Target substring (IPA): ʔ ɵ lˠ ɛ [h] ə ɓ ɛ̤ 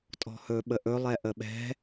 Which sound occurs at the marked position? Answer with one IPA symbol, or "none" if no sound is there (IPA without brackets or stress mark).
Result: ʔ